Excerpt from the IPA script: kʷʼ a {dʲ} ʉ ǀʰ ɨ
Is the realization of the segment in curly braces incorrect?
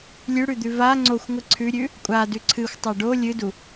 yes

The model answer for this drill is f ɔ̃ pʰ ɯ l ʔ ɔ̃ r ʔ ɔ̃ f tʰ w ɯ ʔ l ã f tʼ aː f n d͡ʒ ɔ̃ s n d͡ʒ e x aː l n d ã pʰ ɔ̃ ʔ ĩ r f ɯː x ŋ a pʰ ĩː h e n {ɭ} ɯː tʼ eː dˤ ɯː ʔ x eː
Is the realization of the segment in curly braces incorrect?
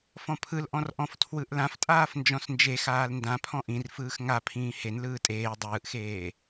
yes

